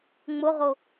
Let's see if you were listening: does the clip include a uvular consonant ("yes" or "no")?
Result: yes